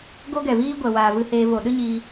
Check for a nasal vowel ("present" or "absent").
absent